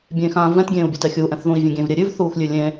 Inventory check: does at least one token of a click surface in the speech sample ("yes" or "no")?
no